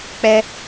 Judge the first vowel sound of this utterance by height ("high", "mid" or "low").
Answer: mid